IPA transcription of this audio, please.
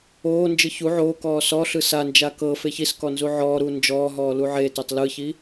oːnd͡ʒɯ çu ʕoːkɔː sɔɬɯ sand͡ʒa kɤfe çiskɔ nzuʕɔːɾuː nd͡ʒɔːɦɔː luʕetɛtˤ lɯçi

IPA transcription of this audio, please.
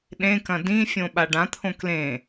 ɗẽkɐ̃ dĩfʲõɓa ɖãt̪ʰõ klẽ

